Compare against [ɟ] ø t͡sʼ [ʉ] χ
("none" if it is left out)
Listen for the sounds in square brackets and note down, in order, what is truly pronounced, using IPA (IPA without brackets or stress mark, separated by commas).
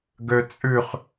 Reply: ɡ, ʉ